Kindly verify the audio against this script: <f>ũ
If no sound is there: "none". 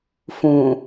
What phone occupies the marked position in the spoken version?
f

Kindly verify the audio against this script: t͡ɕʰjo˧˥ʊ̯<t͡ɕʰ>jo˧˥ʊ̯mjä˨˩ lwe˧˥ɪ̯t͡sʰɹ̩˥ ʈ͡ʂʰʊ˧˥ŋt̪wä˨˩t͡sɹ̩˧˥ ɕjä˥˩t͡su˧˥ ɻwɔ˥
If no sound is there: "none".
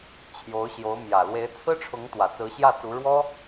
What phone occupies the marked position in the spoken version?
ɕ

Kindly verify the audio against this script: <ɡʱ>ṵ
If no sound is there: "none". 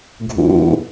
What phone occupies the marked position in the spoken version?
ɡʱ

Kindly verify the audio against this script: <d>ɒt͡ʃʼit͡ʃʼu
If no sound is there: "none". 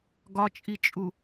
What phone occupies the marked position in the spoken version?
ɡ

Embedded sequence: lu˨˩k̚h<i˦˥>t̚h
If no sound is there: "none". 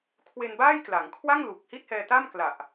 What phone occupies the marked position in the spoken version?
i˥˩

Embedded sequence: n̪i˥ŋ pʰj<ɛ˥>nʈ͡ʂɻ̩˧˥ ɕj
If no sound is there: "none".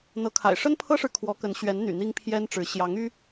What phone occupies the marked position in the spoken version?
ɛ˥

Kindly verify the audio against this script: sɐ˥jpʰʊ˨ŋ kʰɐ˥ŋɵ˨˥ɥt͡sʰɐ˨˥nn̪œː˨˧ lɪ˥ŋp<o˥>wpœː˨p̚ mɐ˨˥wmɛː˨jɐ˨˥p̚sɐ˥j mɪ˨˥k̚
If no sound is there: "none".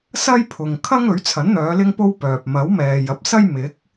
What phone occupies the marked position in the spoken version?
o˥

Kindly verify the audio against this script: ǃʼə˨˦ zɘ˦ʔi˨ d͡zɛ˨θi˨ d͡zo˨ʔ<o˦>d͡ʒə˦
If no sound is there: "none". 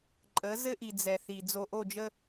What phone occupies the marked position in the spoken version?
o˦˨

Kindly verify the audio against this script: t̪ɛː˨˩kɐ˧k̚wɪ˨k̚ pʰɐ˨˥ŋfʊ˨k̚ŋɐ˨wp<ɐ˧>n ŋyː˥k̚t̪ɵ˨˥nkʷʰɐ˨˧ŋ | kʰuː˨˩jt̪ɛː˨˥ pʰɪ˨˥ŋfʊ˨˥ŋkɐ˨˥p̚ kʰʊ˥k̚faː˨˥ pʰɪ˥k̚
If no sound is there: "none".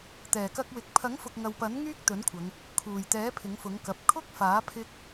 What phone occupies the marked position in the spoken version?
ɐ˨˥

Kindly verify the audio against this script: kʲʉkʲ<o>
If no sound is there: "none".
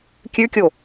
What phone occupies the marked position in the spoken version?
o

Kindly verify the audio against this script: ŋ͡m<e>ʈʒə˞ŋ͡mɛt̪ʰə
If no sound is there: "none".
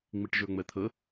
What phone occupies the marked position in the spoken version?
i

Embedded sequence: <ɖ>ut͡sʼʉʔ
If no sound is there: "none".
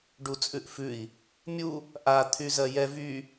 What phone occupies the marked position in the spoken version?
ɖ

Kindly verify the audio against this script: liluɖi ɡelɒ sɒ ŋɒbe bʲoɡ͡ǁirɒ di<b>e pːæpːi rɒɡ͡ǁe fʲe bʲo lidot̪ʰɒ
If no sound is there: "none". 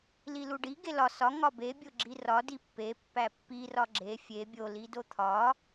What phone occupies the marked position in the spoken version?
pː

